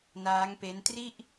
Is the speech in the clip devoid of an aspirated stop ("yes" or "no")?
yes